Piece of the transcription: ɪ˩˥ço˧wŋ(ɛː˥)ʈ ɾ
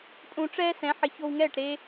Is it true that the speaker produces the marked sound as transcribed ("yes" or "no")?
no